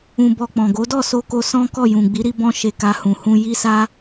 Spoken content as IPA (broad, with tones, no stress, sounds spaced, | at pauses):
ũ˧ b ɔ˧ k͡p ɔ̃˨ ɡ o˨˦ d ɔ˦˨ s o˧ k o˧ s ɔ̃˦ k ɔ˦˨ j ũ˨ ɡ͡b i˨˦ ɾ i˧ b ɔ̃˧ ʃ e˨ k a˨ h ũ˨ h ũ˧ j i˦ s a˦